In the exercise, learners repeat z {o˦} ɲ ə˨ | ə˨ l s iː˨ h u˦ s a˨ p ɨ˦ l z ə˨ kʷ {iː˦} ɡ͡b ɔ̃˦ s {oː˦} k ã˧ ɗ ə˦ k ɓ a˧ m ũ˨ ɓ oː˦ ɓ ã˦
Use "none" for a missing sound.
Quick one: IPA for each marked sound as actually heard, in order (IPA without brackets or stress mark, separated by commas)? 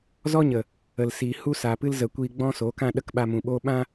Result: ɔ˦, iː˧, oː˨˦